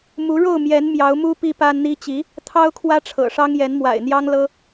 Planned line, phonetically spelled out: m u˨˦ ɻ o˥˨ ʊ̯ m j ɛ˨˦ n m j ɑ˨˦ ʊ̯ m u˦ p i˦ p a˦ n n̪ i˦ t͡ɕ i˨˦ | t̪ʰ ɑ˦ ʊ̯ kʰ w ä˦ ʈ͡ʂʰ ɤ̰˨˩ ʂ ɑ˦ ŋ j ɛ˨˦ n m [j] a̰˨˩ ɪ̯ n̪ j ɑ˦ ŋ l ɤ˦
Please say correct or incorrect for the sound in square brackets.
incorrect: w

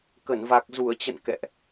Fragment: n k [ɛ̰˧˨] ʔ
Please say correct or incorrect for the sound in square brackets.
correct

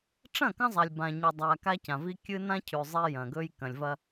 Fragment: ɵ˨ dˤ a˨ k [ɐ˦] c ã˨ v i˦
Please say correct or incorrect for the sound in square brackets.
incorrect: a˦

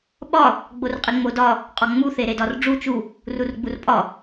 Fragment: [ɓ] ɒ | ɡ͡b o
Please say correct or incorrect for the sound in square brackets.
correct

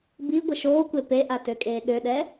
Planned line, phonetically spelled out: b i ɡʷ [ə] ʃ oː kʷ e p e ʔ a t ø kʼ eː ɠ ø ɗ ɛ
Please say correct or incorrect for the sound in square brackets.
correct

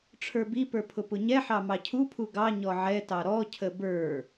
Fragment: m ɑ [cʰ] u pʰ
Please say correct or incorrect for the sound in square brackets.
correct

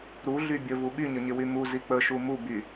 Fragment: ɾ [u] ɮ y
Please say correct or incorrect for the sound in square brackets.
correct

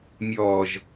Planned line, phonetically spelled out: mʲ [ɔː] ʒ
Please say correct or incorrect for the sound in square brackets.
correct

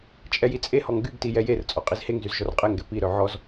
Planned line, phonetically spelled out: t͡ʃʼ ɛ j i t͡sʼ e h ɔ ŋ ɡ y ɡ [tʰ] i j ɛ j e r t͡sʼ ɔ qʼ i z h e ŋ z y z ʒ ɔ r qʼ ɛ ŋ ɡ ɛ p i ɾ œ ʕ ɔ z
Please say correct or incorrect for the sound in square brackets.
incorrect: t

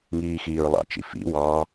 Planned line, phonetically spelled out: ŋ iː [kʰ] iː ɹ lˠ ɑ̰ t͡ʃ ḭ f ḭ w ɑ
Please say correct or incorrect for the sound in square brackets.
incorrect: x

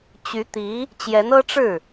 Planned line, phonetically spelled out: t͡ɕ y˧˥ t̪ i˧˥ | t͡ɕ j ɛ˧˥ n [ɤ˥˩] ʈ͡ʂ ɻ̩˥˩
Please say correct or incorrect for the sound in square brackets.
incorrect: ɤ˥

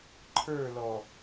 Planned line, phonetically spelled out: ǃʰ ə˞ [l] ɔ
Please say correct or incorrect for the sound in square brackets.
correct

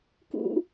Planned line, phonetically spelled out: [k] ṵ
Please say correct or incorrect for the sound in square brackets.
correct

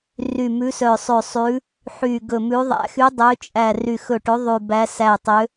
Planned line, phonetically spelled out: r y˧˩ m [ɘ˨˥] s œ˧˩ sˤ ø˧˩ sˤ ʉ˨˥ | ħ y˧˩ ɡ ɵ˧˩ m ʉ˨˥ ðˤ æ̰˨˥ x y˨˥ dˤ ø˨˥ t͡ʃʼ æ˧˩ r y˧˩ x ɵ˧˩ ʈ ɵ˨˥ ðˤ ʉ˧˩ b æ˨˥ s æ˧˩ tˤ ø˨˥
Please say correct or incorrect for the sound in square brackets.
incorrect: ʉ˨˥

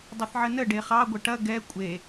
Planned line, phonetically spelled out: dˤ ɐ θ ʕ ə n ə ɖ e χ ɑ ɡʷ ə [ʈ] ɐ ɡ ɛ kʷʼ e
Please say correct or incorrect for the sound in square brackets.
correct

